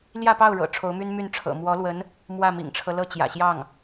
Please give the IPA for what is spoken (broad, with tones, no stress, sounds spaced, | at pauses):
l j ä˥˧ p ɑ˥˩ ʊ̯ ɻ ɤ̰˨˩ ʈ͡ʂʰ o˧˥ ʊ̯ m y˥ n m y˥˩ n ʈ͡ʂʰ ɤ̰˨˩ m w ɔ˧˥ l w ə˧˥ n | m w ä˥˩ m ḭ˨˩ ŋ ʈ͡ʂʰ ɤ˦ l ɤ˥˩ t͡ɕ j ä̰˨˩ ɕ j ɑ˥˩ ŋ